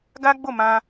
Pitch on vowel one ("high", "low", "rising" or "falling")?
high